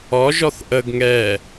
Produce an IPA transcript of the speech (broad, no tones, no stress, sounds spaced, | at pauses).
ɔ ʒ ɔ θ ʔ ə ɡ ŋ ɛ